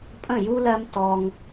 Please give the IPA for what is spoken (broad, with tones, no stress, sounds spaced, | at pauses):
pʼ ə̃˦˨ j u˦ l ɜ˦ m t ɔ˧ ŋ